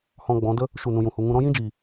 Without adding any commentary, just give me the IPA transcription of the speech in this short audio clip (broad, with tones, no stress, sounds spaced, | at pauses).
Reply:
h ɔ̃˧ ɡ͡b ɔ̃˨˦ d ə˦ | ʃ u˦˨ n ũ˧ j ũ˨ h u˧ ŋ ũ˧ ɾ ɔ̃˦ j ĩ˦ d͡ʒ iː˨